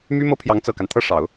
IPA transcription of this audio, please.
m y˥ m ɤ˥ pʰ j ɑ˧˥ ŋ t͡s ɤ˨˩ k a˦ n t̪ʰ ɤ˥˩ ʂ ɑ˨˩˦ ʊ̯

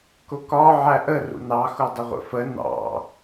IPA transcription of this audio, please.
k ʊ k ɒ ʕ æ ʔ ə r ṵ n ɑ x ʊ dˤ ɪ ʁʷ ə̰ f ə n ɑ̰

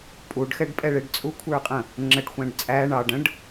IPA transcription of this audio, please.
pʼ u ɖ x ɛ ɖ pʼ ɛ ɭ ɪ ɖ t͡sʼ u kʷʰ ə˞ qʼ ə̃ | ŋ͡ǁ ə ɖ xʷ æ̃ ɖ t͡sʼ æ ɳ ɑ ɖ ə̃ ɖ

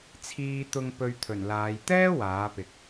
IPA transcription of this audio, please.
t͡sʰ iː˧ t̪ ʊ˧ ŋ p ɵ˧ ɥ t̪ʰ ɵ˨˩ n l aː˨˧ j t̪ ɛː˥ w aː˨˥ p ɪ˨ k̚

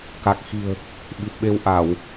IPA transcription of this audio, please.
k a˨˩ k̚ x i̤˨˩ ə̯ | ɓ i˨˩ p̚ ɓ e˧ w ʔ a˧˩˨ w

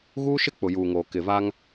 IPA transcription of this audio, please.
ɣ uː˦ ʃ ɪ˦ k͡p ʊ˨ j uː˨ ŋ oː˨ k ɪ˨ v a˦ ŋ

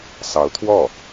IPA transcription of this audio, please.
s ɑ˧˥ ʊ̯ t̪ʰ w ɔ˥˩

